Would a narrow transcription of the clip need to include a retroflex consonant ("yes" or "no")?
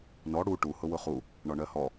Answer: yes